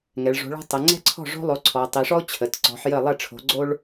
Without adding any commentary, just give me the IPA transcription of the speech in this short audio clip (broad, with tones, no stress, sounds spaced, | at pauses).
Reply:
ŋ ɛ˩˧ ɭ ʐ o̤˨˥ ɭ ɔ̤˥ tˤ ə˩˧ ŋ͡ǀ ɛ̤˥ ǀʰ ɔ̤˥˨ ʐ o̤˥ lˠ o˨˥ ǀʰ ɔ˩˧ tˤ i˩˧ ʂ ɔ˥ ʊ̯ t͡ɕʰ ə˩˧ t ǀ ɔ̤˨˥ ħ j ə˥˨ lˠ ɛ˥˨ ʈ͡ʂʰ o̤˨˥ ɡ͡ǀ o˥ ɭ